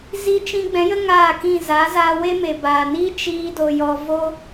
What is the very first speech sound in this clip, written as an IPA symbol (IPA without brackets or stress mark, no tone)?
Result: z